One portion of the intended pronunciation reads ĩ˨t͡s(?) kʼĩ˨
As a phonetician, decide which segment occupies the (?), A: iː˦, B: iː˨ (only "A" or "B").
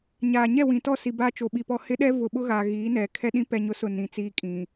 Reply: A